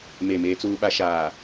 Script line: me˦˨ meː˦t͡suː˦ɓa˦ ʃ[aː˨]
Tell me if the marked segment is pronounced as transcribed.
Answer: yes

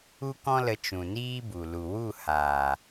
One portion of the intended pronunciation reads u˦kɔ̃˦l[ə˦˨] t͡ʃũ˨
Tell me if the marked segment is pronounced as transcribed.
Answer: no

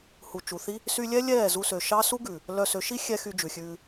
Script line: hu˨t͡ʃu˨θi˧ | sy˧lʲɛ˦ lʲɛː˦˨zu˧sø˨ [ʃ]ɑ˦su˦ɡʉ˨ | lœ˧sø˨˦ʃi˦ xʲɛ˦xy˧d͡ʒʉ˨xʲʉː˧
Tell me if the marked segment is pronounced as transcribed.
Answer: yes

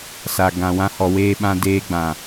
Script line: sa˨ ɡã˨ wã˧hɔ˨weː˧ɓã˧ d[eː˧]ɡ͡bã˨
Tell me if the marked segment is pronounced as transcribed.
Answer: yes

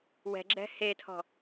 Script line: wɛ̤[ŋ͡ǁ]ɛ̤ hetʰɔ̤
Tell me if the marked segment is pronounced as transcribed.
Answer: no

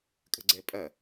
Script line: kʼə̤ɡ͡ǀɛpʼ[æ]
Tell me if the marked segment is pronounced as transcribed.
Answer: no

